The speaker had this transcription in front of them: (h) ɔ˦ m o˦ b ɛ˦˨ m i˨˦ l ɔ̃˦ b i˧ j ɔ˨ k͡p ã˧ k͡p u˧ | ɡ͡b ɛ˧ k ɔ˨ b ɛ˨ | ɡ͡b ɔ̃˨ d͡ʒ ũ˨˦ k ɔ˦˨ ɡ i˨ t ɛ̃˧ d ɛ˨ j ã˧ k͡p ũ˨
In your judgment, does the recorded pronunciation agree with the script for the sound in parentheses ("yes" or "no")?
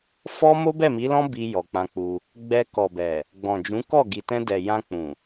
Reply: no